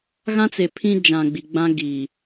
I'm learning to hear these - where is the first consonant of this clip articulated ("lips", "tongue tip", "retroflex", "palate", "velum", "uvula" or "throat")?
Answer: velum